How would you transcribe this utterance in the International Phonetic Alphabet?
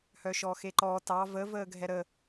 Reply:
h œ ʃ ɔ x e ǃ ɔː t ɑ v ə v əː ɡʱ ɛ ɾ ə

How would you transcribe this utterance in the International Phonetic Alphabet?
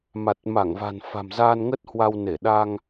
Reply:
m a˨˩ t̚ m a˧˩ ŋ v a̤˨˩ n f a̤˨˩ m z aː˧ n ŋ ə˦˥ t̚ h w a˧ w n e˧˩ ɗ aː˧ ŋ

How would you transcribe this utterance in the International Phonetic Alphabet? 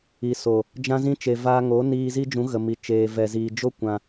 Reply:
i˨ s o˨ | d͡ʒ ã˦ z ĩ˦ t͡ʃ e˨ v aː˧ ŋ o˨˦ n iː˧ z i˦ d͡ʒ ũ˨˦ ɣ ə˨ m i˨ t͡ʃ eː˨ v ɛ˨ z iː˨ d͡ʒ o˦ kʷ ã˧

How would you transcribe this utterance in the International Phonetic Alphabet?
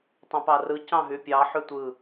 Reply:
tˤ ẽ p ɑ r ɯ c ɑ̃ ɦ y pʲ ɑ ħ y tʷ ɯ

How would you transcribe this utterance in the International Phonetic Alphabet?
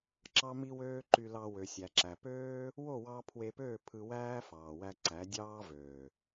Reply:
ǁ ɑ˦ m i˦ w øː˦ ǃ y˧ l ɑ˧ w ø˨ sʲ æ˨ ǁ æ˨ p øː˦ | w o˦˨ w ɑ˧ pʰ w e˧ p øː˦˨ pʰ ɯ˧ w æː˦ f ɑː˨ w æ˧ ǀ æ˨˦ dʲ ɑː˦ v øː˨

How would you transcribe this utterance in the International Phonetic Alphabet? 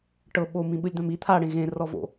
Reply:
ʈ ɤ ɓ o m ĩ ɓ ɯ lʲ d̪ ã m i t̪ʰ a ɽ ẽ ɣ ẽ r ɔ v o̰

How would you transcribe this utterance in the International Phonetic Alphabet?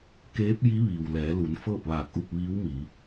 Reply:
k eː˧˥ p̚ j i˧˥ ʋ iː˩ w l ɛː˩˧ l u˩˧ n f ɤː˥˨ p̚ ʋ aː˧˩ k̚ ʔ u˥˨ p̚ ʋ iː˧˥ w m i˩˧

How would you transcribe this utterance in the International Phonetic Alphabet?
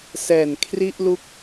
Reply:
s ɛː˨˩ n kʰ r i˥˩ ʔ l u˦˥ k̚

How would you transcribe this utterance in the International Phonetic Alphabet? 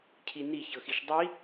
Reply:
cʰ i n i ç ɤ x i ʃ dˤ i

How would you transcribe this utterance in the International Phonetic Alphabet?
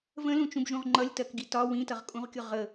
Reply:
v ə̃ l ũ t͡ʃ ũ b ʒ ũ ʁ ŋ͡ǃ ʌ lʲ t ɜ k ɡ i t ɒ w ĩ t ʌ ʁ kʼ ũ ʁ kʲ ʊ ʁ ə

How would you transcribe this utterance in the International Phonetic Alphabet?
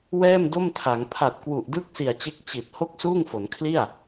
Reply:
w ɛː˥˩ m d o˥˩ m tʰ a˩˦ ŋ pʰ a˨˩ t̚ k w u˨˩ ʔ d ɯː˥˩ k̚ s i˨˩ a̯ t͡ɕ e˦˥ k̚ t͡ɕ i˨˩ t̚ h o˥˩ k̚ s uː˥˩ ŋ f o˩˦ n kʰ l i˥˩ a̯

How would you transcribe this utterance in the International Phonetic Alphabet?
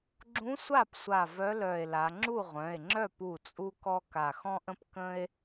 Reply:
ɡ͡ǁ ũ˧˥ sʷ a˥˩ p sʷ a˧˩ v œ˧˥ l œ˧˩ e̯ l a˩˧ ŋ͡ǁ u˥˩ ʁʷ œ̃˩˧˩ e̯ ŋ͡ǁ œ˥˩ p u˥˩ t͡sʼ u˥ k ɔ˥ k a˧˩ x ɔ̃˥ ʔ ə̃˥ p k ə̃˥ e̯

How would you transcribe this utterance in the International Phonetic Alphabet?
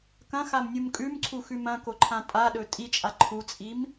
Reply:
k ɐ̃ x a m nʲ u m kʼ ʉ m ǀʰ u x ʉ m ɐ̃ k o ǃʰ ã tʼ a ɗ ɵ tʼ i t͡ʃʼ a ǃʰ u t͡sʼ i m

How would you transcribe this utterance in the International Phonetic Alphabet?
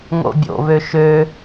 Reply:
ŋ o̰ bʲ o̰ β ø ʃ ø

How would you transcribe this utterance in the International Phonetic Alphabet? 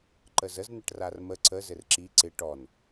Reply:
ǃ ə z ə z n ə ʈ r a r m ə ǀ ə z ɘ r ǁ i ǀ ɪ ʈ ɔ n

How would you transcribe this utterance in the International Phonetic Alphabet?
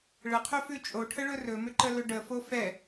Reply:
ɭ ə qʰ ɵ f ʉ t͡ʃʼ o ʈʰ ə ɭ ɵ r ɵ m ʏ ǃ ə l ɵ ɖ ə f o f ɛ

